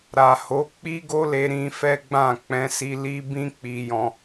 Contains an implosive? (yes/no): no